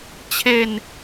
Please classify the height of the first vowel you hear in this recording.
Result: mid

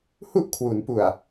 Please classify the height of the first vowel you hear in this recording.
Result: high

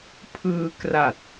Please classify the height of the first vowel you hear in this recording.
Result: high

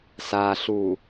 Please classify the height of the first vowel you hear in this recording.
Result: low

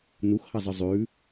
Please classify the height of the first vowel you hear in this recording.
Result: high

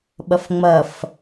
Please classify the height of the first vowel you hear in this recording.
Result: low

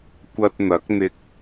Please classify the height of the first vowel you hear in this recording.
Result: low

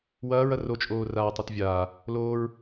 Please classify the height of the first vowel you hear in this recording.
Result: low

